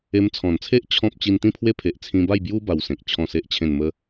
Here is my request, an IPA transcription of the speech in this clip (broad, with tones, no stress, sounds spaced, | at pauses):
e˧ m t͡sʰ ɔ̃˨˩ n t͡sʰ e˦ ʔ t͡ɕʰ ɔ̃˦ p̚ t͡ɕ i˧ n t̪ ĩ˥˧ pʰ w e˦ pʰ e˨ ʔ t͡sʰ ĩ˧ b a˥˧ j b j u˦ b a˧ w s ẽ˨ k̚ t͡ɕʰ ɔ̃˥˧ s e˦ ʔ t͡ɕʰ ẽ˥˧ n m ə˦